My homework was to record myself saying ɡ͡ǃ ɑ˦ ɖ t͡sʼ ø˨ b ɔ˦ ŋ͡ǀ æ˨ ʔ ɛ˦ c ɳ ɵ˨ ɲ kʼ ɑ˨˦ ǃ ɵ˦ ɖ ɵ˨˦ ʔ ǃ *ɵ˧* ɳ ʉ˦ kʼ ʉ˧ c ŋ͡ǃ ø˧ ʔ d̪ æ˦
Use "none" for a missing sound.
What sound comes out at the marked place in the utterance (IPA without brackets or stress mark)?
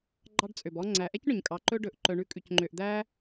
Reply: œ˧